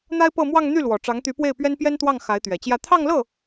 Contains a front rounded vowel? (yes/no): yes